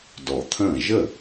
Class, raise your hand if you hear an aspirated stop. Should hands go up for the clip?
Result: yes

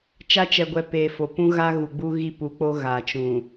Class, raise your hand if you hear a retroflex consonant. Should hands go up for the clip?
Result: no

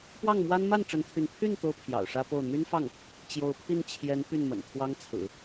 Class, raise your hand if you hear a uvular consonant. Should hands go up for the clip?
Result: no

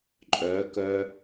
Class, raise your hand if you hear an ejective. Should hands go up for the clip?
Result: yes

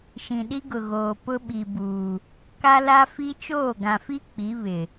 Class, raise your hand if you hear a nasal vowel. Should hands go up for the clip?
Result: yes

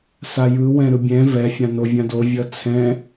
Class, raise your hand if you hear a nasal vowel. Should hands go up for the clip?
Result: yes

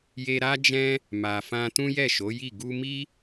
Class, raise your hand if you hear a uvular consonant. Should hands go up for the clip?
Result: no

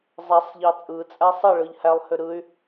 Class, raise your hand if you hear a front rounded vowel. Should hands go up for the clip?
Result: yes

